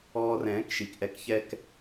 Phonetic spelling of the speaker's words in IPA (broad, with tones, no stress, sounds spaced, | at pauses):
ɔː˧ r ɛ̃ː˩˥ k ʃ i˩ k ʔ ɛ˧ k ç ɛ˧ k